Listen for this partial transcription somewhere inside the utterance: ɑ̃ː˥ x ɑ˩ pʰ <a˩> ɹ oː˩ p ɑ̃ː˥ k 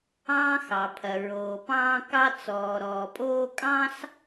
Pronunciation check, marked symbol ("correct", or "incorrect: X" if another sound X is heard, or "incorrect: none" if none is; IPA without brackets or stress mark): incorrect: ɐ˩